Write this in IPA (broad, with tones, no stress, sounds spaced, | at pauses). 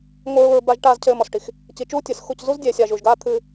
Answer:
ŋʷ ɨ˨ ɹ u˨ ɹ b a˨ ʒ ʈ aː˨ z cʰ ɘː˨ m ɔ˨ s ʈ i˨ x | c i˨ t͡ʃ uː˦ tʲ ɨ˨ s x u˦˨ c z u˦ z dʲ e˨ sʲ aː˨ ʒ u˨ ʒ ɡ aː˦ t̪ʰ ɨː˦